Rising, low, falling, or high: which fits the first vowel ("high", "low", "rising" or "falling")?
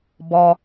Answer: low